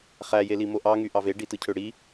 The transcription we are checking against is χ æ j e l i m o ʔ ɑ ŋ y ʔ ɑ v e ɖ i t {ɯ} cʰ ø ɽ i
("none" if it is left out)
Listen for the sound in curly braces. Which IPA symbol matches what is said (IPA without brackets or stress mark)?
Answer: ɯ